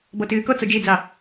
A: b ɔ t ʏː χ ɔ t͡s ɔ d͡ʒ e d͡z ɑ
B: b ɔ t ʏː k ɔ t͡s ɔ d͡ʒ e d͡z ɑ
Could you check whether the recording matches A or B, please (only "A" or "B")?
B